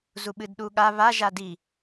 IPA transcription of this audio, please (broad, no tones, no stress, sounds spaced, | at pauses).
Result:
z u ɓ ɨ d ɗ u ɠ a β a ʒ a d i